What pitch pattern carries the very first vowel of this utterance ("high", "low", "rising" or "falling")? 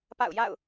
falling